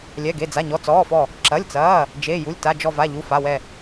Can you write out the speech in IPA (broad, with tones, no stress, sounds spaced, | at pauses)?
lʲ ɛ˩˧˩ ɡ e˩˧˩ d͡z a˩˧˩ ɲ ɔ˩˧˩ t͡s ɔː˩˧˩ f ɔ˧˩ | ǁ ɐ˩˧˩ lʲ t͡s ɐː˩˧˩ | d͡ʒ e˩˧˩ j u˩˧˩ lʲ t a˩˧˩ d͡ʒ ɔ˧˩ v a˩˧˩ ʎ u˩˧˩ f a˩˧˩ w ɛ˧˩